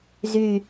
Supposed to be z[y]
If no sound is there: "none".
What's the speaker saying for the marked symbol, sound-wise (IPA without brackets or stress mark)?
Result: y